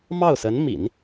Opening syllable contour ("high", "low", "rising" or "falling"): falling